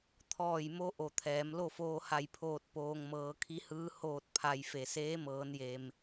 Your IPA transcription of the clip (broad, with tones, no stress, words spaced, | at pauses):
t̪ʰɔː˧˩jmo˧ ʔo˧˩t̪ʰɛː˩˧m lo˥˨foː˧ha˧˩jpʰoː˧˩t̚ poː˩ŋ mɤː˩˧kʰi˧˥hɯː˧˥ hoː˧˩t̚ pʰa˩j fe˩seː˧˥mɤː˩˧nje˩m